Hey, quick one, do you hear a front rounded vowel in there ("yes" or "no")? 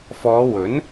no